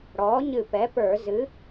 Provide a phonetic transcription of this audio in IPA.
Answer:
ɽ ɔː˩˥ ɲ ɨ˧˩ p ɛ˩˥ p ə˞˧˩˧ z ɨ˩˥

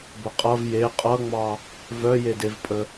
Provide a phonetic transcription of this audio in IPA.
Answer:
b ə qʼ ʌ v j e qʼ ʌ ŋ͡m ɑ | v œ j e d e v pʼ ə

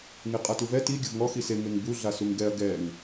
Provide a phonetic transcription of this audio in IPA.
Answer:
ŋ ɪ qʼ a t u v ɛ t i ɡʲ ʊ v ŋ ɔ x i s e ŋ e ŋ b u ɮ a s u ŋ ɡ ɛ ɐ̯ ɡ ɛ ŋ

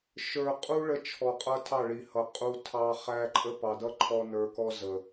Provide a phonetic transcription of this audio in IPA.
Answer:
ʃ ə˞˨ qʼ u˧ ɭ ə˦ t͡ʃʰ ɔ˨ qʼ ʌ˧ tʰ ɑ˦˨ ɭ i˨ h ʌ˨ qʼ u˧ tʰ ɑ˧ χ æ˧ ǃʼ ə˦ p ɑ˨ d ʌ˦ ǃʰ ɔ˧ n ə˞˧ k ɔ˦ z ə˨

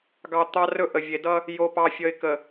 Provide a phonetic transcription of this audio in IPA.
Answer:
ɡ ɑ˨ t̪ ɑ˦ r ɵ˦ ʔ ə˨ vʲ e˨ d ʌ˦ | j o˨ p ɑ˨ fʲ ə˨ ɪ̯ k ə˨

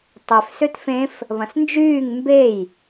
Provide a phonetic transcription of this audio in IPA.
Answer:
tˤ ʏ f s ø t f ẽ f | β ɐ̃ s n d͡ʒ yː ŋ m b e j

